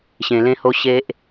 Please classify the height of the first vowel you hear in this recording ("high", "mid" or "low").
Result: mid